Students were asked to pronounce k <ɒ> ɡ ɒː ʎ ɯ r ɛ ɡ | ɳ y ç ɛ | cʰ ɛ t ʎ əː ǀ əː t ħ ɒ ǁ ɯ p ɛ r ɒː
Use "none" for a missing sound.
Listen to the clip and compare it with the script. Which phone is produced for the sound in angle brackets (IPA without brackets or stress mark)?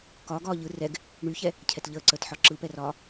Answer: ɒː